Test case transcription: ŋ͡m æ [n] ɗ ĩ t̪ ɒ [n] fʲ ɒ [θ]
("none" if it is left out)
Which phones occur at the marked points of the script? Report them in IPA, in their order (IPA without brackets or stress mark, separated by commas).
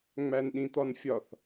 n, n, θ